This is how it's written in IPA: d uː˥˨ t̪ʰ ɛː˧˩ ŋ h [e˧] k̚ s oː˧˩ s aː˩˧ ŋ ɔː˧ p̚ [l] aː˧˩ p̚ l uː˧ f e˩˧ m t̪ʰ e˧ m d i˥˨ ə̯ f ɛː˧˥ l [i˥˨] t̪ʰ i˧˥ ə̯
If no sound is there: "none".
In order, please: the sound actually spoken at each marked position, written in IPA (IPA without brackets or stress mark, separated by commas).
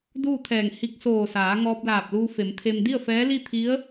i˧, l, i˥˨